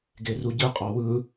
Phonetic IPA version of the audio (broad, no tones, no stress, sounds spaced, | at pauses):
ɡ e r u ɟ ɯ qʼ ɑ w ɯ